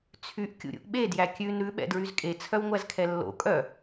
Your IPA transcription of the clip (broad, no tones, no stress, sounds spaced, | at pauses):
t͡sʰ y ʔ kʲ ṵ ɾʲ ṵ ʔ ɓ e d j æ kʲ ʉ n ɾ ʉ ɓ ɛ̰ d ɹ y z kʼ e t͡sʰ œ w ŋʷ æ z kʰ ɛ lː o̰ kʼ œ